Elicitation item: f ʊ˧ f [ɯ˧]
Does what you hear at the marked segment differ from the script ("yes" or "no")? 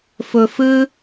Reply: no